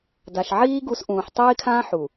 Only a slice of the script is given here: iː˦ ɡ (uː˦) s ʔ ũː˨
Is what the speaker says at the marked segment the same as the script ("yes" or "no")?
no